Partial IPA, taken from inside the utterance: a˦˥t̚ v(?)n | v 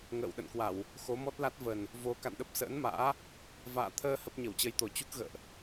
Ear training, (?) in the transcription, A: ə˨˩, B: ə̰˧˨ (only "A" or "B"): A